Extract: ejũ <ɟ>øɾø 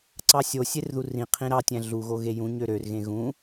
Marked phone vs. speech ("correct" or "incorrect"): incorrect